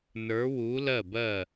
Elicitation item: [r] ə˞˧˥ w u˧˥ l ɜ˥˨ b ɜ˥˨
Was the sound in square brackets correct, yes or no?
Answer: no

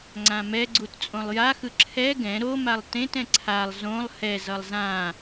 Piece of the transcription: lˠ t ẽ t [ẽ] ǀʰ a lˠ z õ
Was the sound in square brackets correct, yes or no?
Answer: no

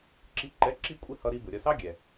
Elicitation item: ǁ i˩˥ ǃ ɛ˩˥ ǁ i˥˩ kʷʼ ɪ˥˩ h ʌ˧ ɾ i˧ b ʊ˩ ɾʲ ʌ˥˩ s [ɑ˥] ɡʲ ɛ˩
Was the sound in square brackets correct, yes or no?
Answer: yes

